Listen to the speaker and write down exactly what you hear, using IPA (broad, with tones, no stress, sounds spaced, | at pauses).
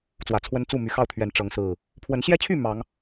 t͡s w ä˨˦ t͡sʰ w ə˦ n t͡s u˥˨ m y˨˦ x ɑ˥˨ ʊ̯ t̪ʰ ɥ ɛ˨˦ n ʈ͡ʂ ɤ˨˦ ŋ s ɹ̩˨˩ | pʰ w ə˨˦ n ɕ j ɛ˦ t͡ɕʰ y˥˨ m ɑ˨˦ ŋ